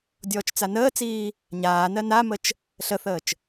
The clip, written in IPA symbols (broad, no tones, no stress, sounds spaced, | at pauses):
dʲ ɔː t͡ʃ t͡s a n əː t͡s iː | ɲ aː n ɜ n a m ə t͡ʃ | ɬ ə θ əː t͡ʃ